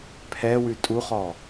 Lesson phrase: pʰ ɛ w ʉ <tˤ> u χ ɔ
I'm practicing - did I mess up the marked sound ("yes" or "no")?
yes